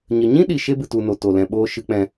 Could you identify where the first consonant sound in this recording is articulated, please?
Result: palatal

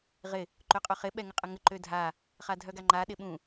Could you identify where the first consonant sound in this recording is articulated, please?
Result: uvular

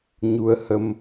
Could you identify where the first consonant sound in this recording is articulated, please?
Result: palatal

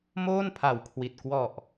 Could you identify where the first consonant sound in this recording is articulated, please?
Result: labial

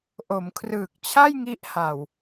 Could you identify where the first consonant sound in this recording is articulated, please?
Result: glottal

